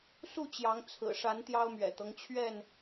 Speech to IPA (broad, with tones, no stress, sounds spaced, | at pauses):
s u˥˨ t͡ɕ j ɑ˨˦ ŋ t͡sʰ ɹ̩˨˩ ʂ a˨˦ n t̪ j ɑ˦ ʊ̯ m ɥ ɛ̰˨˩ t̪ ɤ˦ ŋ t͡ɕʰ ɥ ɛ˥˨ n